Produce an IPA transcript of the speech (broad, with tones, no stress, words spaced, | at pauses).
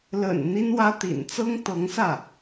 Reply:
lə̰˨˩n n̪i˥nwä˥ t̪ḭ˨˩nt͡sɤ˥ŋ t̪ɤ˧˥ŋsä˥˩